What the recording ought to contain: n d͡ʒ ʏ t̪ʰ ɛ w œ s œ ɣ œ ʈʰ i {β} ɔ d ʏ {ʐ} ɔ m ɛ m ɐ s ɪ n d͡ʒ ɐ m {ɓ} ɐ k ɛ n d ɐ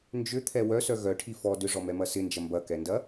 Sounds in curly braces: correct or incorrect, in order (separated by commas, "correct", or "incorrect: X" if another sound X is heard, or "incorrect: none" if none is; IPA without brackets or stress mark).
incorrect: f, correct, incorrect: b